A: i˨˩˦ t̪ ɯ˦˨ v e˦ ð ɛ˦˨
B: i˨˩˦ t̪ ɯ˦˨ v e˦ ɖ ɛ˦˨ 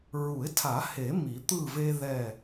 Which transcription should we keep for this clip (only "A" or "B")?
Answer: A